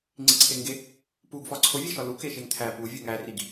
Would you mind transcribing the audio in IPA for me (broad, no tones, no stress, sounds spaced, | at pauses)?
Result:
ŋ͡ǀ i ǀʰ e ŋ ɡ e | p u ɡ f ɒ ǀʰ o vʲ e ʃ ɒ l u k e ʃ e ŋ t̪ʰ æ p u vʲ u ŋ æ r i ɡ